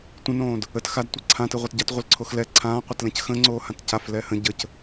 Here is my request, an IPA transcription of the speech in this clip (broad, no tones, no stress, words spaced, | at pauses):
tʷə̃nõːd | ət xadtʷɯ ǀʰãtɯʁʷɛt ɟatʁʷəlǀʰox lɛ ǀʰãːqʷɛtlɛ̃c xə̃ŋ͡ǀoːhãt caflɛː hə̃ ɟəc